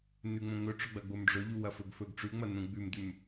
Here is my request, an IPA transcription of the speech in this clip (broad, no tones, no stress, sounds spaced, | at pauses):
n ʉ ŋ͡m õ ŋ ɵ ʈ͡ʂ ɵ ɡ͡b ɐ ɡ͡b o m ɖ͡ʐ ɵ ʎ u w ɐ f ɵ ɡ f ɵ ɡ ʈ͡ʂ ʉ ŋ͡m ɐ n ũ ɡ͡b ʉ m d ʉ m